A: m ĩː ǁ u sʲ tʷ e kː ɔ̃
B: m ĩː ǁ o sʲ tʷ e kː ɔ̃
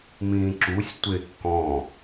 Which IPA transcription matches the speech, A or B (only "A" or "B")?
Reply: A